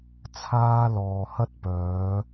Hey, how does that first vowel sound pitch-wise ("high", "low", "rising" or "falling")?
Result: high